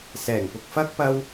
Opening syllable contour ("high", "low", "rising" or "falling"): low